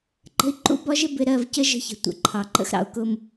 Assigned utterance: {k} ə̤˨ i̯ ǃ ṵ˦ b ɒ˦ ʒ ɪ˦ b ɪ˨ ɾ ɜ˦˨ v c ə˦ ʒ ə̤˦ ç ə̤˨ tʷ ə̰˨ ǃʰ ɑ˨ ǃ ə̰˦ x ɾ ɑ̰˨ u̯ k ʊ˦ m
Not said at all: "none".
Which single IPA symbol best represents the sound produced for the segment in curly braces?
ǃ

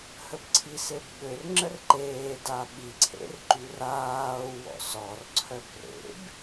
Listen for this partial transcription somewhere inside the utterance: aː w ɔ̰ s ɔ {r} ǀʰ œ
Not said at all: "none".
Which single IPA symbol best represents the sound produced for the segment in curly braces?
r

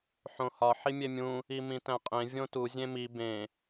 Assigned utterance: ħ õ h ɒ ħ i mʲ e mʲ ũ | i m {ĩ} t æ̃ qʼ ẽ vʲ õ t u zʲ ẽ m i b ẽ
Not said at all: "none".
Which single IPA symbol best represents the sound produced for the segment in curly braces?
ĩ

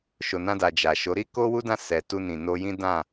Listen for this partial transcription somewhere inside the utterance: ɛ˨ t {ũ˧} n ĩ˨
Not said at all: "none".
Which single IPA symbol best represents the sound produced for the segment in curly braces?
u˧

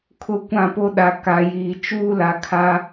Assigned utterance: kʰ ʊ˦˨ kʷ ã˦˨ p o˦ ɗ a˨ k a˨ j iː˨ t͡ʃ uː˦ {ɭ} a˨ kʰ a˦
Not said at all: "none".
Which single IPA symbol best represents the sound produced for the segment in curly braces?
l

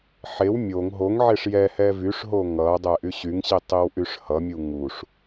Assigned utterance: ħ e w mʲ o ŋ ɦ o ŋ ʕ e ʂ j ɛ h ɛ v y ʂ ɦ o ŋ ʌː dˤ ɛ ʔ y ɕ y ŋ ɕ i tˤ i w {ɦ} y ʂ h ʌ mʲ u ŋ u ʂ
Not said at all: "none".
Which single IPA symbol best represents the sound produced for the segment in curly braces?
ʔ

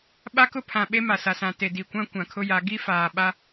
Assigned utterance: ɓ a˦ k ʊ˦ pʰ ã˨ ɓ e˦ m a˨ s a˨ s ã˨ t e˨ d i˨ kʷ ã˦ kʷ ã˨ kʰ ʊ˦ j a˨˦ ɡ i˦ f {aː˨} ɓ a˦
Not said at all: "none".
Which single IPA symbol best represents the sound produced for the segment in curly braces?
aː˨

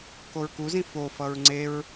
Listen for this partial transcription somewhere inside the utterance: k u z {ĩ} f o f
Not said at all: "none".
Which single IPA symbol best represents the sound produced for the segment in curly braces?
ĩ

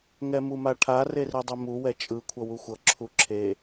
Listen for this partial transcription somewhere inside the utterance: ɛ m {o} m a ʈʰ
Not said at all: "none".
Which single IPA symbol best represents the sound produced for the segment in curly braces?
u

